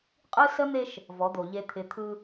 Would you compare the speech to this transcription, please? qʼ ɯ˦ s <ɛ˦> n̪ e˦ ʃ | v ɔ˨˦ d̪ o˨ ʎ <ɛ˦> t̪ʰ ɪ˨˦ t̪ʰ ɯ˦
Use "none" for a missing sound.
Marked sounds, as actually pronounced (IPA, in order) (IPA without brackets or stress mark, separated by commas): ə˦, e˦